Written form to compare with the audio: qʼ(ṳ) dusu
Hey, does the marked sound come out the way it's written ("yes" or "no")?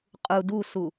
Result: no